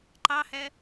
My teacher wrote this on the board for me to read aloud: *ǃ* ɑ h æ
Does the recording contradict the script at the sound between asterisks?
no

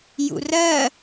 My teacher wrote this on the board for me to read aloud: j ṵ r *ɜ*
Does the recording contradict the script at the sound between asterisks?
no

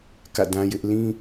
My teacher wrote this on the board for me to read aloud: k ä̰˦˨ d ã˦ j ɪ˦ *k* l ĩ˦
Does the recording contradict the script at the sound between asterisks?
yes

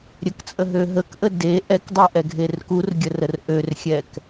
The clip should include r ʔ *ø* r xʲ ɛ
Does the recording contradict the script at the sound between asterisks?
no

